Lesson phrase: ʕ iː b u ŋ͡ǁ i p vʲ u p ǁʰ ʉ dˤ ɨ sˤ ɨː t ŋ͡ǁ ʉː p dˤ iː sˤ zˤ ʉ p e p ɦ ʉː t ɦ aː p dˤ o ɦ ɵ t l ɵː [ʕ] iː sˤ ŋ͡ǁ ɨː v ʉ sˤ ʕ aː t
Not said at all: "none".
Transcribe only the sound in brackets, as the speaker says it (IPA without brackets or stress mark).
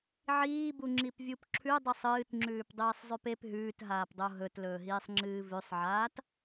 ɦ